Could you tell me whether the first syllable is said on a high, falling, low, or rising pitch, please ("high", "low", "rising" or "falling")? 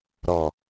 low